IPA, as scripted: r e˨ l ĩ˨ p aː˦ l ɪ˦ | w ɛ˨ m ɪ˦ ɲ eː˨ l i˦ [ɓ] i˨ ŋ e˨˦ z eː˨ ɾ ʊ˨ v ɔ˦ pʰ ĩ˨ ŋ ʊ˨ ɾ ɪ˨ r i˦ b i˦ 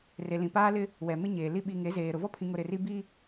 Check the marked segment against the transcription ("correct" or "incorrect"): correct